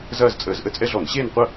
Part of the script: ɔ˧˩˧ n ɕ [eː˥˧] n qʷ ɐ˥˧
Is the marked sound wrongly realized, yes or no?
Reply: no